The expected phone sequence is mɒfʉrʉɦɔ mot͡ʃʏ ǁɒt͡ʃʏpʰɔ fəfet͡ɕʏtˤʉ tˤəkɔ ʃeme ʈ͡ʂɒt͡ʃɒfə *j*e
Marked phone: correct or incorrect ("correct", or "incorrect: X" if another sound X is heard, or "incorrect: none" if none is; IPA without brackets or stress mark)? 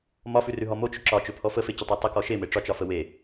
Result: incorrect: w